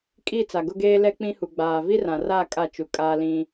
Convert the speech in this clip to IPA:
kʼ i˦˨ t͡s a˨ ɡ ʊ˦ ɡ eː˦ l ɛ˦ k͡p ĩ˦ h u˨ ɡ͡b aː˨ v i˦ r ã˨ r a˦˨ kʼ a˦˨ t͡ʃ u˨ kʼ aː˦ l ĩ˦

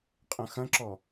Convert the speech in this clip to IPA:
qʼ ɐ̃ x ɐ̃ ǁ ɔ

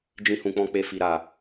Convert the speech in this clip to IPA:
d͡ʒ ĩ˧ h ũ˨ k͡p ɔ̃˧ k͡p e˧ f i˨ ɾ a˨

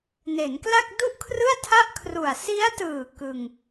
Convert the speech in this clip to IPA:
n e˩˦ n k l a˥˩ k̚ d u˥˩ ʔ kʰ r ɯ˥˩ a̯ tʰ a˥˩ ʔ kʰ r u˨˩ a̯ s i˦˥ a̯ t ɯː˨˩ k ɯ˧ ŋ

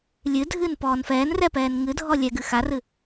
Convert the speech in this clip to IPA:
lʲ ɨ dʱ ɨː n p ɔː n f ɛː n r ɛ p ɛː n ŋ ɨ dʱ ɔ lʲ ɛ ɡ ɨ x a r ɨ

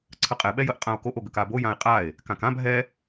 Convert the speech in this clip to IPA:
ǀʰ ə qʼ ɛ ɓ ɛ j ə ʔ qʼ ã o̯ k o ʔ o ɡ ə k a b o j ã e̯ qʼ a e̯ | k ã k ã b ɦ ɛ

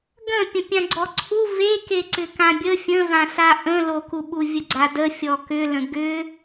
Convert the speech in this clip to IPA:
ɡ ə̃ pʲ ə̃ pʲ ã ɡ͡ǀ ɔ ǀʰ u v e k e ǀ ʏ k ã bʲ ə fʲ ə̃ v ã s a ʔ ə̃ l o k u ɓ u vʲ ə ɡ͡ǀ a d ə fʲ ɔ k ʏ l ə̃ ɡ ʏ

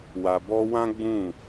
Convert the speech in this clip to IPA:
w a˨ b ɔ˧ w ã˦ ɡ͡b ũ˦˨

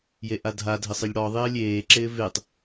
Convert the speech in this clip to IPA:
j e ʔ a dʱ a dʱ ɪ sˤ ɪ ʎ ɽ ɔ ðˤ ɪː lʲ eː ǁ ɪː v e tˤ

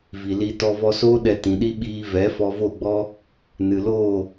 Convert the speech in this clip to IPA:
v i˨ l i˧ t ɔ˧ v ɔ˧ s oː˦ ɗ ɛ˧ t ĩ˨ ɗ i˦ ɓ iː˧ v ɛ˨˦ f ɔ˧ v o˦˨ ɡ͡b ɔ˦ | n ɨ˨ l oː˦˨

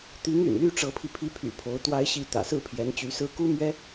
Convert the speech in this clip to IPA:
t̪ i˧˥ ŋ y̰˨˩ n l y˥˩ ʈ͡ʂ ɤ˧˥ pʰ i˧ pʰ i˧˥ pʰ y̰˨˩ pʰ o˧˥ ʊ̯ t̪ w a˥ ɪ̯ ɕ i˥˩ t̪ ä̰˨˩ s ɹ̩˥˩ pʰ j ɛ˧˥ n t͡ɕ y˧˥ s ɹ̩˥ k u˥ m ɥ ɛ˥

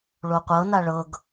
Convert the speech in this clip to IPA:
ɭ o qʷ ɤ n a ɭ ɤ ɡ

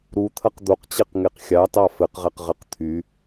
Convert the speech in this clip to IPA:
ɾ u t̪ʰ ɐ q d̪ o q t͡ɕ e q ŋ e q xʲ ɑ t ɑ f ɘ q ʁ ɛ q ʁ ɘ q t̪ʰ y

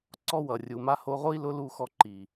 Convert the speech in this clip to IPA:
ǀ ɔ˦ w ʌ˨ rʲ u˨ m a˦ h o˧ ʁ o˦ i̯ l ʊ˦ l u˧ x ɔ˧ ǃ i˨

